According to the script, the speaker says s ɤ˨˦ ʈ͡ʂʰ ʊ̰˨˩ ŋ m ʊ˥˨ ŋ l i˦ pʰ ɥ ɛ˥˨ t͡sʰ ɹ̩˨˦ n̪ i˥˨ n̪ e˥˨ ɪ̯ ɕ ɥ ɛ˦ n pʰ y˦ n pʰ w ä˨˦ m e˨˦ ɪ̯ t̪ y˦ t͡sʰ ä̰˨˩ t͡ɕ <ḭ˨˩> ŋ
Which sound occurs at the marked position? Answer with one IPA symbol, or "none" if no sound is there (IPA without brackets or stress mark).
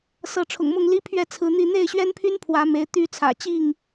i˥˨